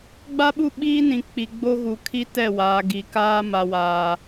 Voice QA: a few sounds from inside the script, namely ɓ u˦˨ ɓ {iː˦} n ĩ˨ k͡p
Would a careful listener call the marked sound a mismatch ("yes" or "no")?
no